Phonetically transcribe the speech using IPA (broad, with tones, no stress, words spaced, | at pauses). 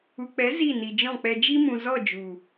u˨k͡pɛ˨˦ zi˦˨ni˨d͡ʒɔ̃˦˨k͡pɛ˧ d͡ʒi˦mũ˨zɔ˦˨ d͡ʒu˨